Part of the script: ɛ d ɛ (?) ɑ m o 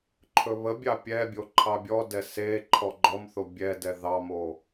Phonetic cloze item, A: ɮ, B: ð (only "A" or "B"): B